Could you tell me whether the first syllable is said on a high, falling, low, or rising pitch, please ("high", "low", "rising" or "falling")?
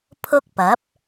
high